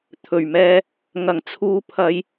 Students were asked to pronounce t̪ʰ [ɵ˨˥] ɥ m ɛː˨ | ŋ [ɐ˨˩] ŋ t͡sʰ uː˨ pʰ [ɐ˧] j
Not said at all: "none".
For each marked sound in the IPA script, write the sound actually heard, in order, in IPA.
ɵ˨˩, ɐ˨˩, ɐ˨˧

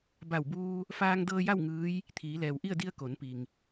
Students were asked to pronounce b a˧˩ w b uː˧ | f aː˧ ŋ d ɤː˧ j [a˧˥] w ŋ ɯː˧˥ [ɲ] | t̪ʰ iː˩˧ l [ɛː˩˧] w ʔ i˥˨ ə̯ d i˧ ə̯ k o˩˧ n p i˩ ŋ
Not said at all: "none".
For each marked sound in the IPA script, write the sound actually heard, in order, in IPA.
a˥˨, j, ɛː˩

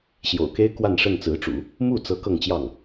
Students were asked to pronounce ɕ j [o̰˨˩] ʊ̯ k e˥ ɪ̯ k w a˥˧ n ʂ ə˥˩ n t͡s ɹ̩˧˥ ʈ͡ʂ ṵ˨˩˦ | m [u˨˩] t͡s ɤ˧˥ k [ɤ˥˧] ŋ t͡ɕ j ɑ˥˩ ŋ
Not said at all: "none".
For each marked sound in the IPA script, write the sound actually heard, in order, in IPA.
o̰˨˩, u˥˩, ɤ˥˧

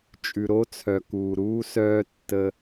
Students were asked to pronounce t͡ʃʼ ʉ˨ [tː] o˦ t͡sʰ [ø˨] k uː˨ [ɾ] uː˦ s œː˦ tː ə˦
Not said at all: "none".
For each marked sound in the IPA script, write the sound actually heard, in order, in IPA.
ɾ, œ˨, ɾ

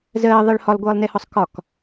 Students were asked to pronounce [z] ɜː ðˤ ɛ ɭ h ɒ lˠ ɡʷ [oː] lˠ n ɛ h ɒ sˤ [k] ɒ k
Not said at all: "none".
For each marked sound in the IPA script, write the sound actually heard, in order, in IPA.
z, ɤː, k

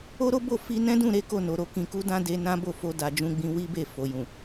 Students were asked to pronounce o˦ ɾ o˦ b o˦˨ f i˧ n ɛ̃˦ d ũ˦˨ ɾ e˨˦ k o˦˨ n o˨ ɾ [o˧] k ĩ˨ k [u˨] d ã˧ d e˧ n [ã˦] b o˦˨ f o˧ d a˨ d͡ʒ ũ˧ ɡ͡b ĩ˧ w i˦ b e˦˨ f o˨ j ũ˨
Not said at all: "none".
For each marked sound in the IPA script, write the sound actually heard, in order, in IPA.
o˧, u˧, ã˦

